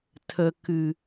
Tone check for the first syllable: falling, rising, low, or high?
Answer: low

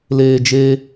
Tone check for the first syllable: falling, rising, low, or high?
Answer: low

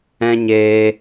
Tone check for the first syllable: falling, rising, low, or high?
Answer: high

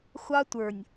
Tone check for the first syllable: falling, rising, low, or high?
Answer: high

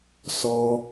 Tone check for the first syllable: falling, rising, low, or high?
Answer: high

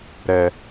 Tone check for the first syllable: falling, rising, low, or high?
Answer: low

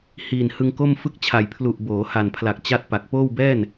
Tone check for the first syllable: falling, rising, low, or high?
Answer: low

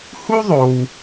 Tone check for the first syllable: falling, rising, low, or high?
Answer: high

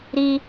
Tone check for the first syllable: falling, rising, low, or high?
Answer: high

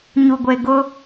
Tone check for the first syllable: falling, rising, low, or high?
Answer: low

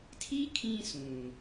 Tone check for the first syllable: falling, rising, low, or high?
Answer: high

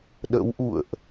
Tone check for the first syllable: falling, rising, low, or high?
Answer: rising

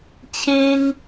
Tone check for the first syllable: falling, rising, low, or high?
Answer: high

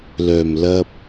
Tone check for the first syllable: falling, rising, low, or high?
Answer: low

